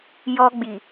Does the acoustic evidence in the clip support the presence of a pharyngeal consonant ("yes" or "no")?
no